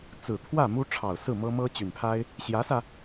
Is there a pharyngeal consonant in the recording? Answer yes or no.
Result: no